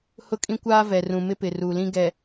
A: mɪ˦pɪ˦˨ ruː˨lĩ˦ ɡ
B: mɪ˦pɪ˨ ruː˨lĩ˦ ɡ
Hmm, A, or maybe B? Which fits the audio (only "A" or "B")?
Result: B